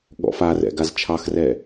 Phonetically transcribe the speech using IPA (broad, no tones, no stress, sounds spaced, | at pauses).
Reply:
ɠ ɔ̰ f a r ɛ̰ ɡ a z t͡ʃʰ ɑ x r ɛ